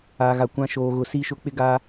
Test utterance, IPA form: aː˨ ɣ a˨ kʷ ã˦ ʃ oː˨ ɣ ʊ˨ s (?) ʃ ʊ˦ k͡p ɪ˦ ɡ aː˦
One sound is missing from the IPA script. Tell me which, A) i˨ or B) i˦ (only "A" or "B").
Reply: B